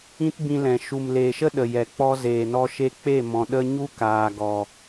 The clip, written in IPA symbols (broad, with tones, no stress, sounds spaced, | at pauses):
ĩ˦ t b ĩ˧ l ɛ̃˨ ʃ u˨ m l e˨ ʃ ə˦ ɗ ə˨ j ɛ˨ k͡p ɔ˧ z eː˨ n ɔ˧ ʃ e˧ k͡p e˦˨ m ɔ̃˨ ɗ ə˦ ɲ u˦ k aː˨ ɡ ɔ˨